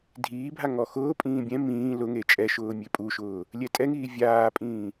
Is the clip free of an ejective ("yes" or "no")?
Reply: no